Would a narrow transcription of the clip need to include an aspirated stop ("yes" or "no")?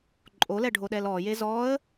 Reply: no